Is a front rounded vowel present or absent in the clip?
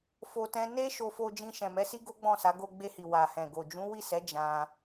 absent